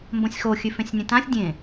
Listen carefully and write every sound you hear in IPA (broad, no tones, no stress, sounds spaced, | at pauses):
m b õ sʲ x o xʲ ʉ f ẽ sʲ nʲ ẽ t ã sʲ dʲ ẽ